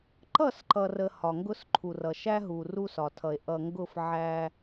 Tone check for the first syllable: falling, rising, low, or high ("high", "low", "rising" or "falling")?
falling